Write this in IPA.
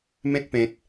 m ẽ˦ t̚ p ẽ˨ t̚

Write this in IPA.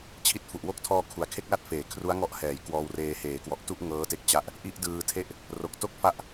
t͡ɕʰ i˦˥ t̚ f u˨˩ ʔ w o˥˩ k̚ tʰ ɔː˧ kʰ u˩˦ a̯ kʰ e˥˩ k̚ l a˥˩ t̚ f eː˩˦ kʰ r u˦˥ a̯ ŋ ɔ˦˥ ʔ h ɛː˩˦ j k w ɔː˧ w r eː˧ h eː˩˦ k w ɔ˨˩ ʔ t u˥˩ ʔ ŋ ɤː˦˥ t e˦˥ k̚ t͡ɕ a˦˥ ʔ | ʔ i˥˩ ʔ d ɯː˧ tʰ e˥˩ ʔ | r o˨˩ k̚ t o˥˩ k̚ f a˦˥ ʔ

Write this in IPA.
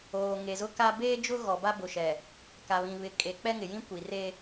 oː˨ ŋ e˨ z ʊ˦ k a˦ b eː˦ d͡ʒ ʊ˦ ɣ ɔ˨ b a˦ b ʊ˨ ʃ ɛ˨ | k a˨ β ĩ˨ β ɪ˨˦ kʼ e˨ k͡p ɛ˦ ŋ ɪ˨ j ĩ˦ kʷ i˨ r e˦

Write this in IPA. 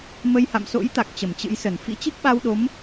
m ə˧ j h a̰˧˨ m s o̰˧˥ j t̪ a˨˩ k̚ t͡ɕ ə˧˩ m t͡ɕ ɨ̰˧˥ j s ə˧˩ n f ḭ˧˥ t͡ɕ i˦˥ k̚ ɓ a˧ w ɗ o˨˦ m

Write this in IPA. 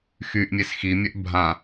x y ʔ mʲ e s x i mʲ œ ʔ bʱ ã

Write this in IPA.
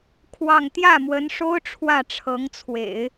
kʰ w ɑ˥˧ ŋ t̪ j ä˥˩ m w ə˧˥ n ʂ o˥ ʊ̯ ʈ͡ʂʰ w ä˥˩ ʈ͡ʂʰ ɤ˧˥ ŋ t͡sʰ w ḛ˨˩˦ ɪ̯

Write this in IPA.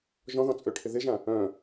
ʒ ɔ̃ ð ɔ̃ t͡sʼ ø ʈʰ ɪ ð ɪ ʒ ã | œ̃

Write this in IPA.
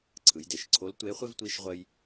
ǀʰ ɯ˩˧ j d e˩ ʃ ǀʰ o˧˥ l tʷ e˧˥ χʷ ɪ˥ v tʷ i˧˥ ʃ ʁʷ ə˥ j

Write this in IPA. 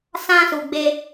s ã˧ s u˨ ɡ͡b e˧

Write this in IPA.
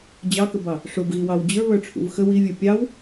d͡ʑ ɑ k ə b ɑ | ʂ ʊ b ɣ i w ɑ w d͡ʑ ə˞ β ə˞ ʈ͡ʂʰ ṵ v x ə w i vʲ ə˞ pʲ ɑ w

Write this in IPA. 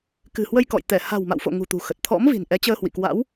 k ɨ̤˨˩ h w ə˧ j k ɔ̰˧˨ j t̪ ɛ˧˩ h a̤˨˩ w m a̰˧˨ w f o̰˧˨ ŋ ṳ˨˩ t̪ ṳ˨˩ x ə˨˩ t̚ t̪ʰ ɔ̰˧˥ m v i̤˨˩ n ʔ ɛ˨˦ t͡ɕ əː˧ h w ḭ˧˨ k w a̰˧˥ w

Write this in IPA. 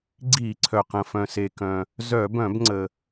ɡ͡ǀ i˧˩˧ ǀʰ œ˩ q ə̃˩ f œ̃˩ s e˩ k œ̃˩ | z œ˧˩˧ b œ̃˧˩˧ b ŋ͡ǀ ə˩

